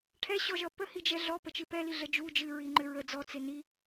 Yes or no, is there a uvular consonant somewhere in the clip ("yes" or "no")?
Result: no